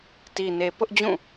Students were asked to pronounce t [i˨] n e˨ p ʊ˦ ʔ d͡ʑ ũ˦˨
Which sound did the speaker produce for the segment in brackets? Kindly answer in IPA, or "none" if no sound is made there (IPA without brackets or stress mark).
i˨